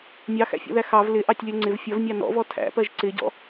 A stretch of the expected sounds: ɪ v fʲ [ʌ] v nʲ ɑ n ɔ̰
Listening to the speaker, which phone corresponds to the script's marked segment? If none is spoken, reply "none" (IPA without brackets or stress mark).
ʌ